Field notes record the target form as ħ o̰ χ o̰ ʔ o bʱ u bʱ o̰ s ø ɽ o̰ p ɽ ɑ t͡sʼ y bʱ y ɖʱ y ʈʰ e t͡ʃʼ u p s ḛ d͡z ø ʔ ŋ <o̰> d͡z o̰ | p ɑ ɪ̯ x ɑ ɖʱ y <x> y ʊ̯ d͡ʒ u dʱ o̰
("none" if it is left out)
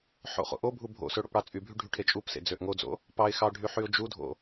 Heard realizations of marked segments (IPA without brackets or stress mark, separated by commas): o, ħ